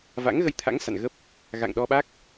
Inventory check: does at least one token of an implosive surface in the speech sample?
yes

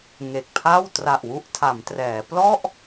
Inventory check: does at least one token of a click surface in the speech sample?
no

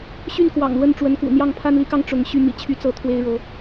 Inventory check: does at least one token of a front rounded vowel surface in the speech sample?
yes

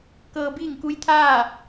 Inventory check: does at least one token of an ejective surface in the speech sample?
no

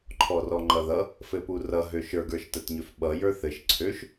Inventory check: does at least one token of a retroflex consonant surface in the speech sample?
no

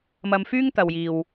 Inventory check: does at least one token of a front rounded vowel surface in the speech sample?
yes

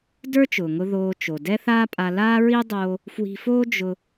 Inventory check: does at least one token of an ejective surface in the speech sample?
yes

